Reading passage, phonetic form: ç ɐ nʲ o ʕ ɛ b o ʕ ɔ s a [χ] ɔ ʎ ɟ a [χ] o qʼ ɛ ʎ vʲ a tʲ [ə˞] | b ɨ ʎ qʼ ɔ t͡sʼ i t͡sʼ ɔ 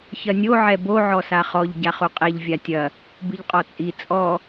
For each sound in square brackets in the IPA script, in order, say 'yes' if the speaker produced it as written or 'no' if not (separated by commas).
yes, yes, no